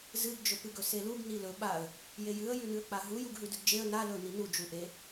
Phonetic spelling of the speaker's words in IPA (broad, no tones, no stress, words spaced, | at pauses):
zɨɡd͡ʒɵpɨɡɵ seluɡ nilɵ ɓaə̯ | jejɨə̯ jʉnɨə̯k͡paɦu juɡɦʉdʉɡd͡ʒeə̯ na lɵ ninud͡ʒu ʔe